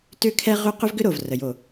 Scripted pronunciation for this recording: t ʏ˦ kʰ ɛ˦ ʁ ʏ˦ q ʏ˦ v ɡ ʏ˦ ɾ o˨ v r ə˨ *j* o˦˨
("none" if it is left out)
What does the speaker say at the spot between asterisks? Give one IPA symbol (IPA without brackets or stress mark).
j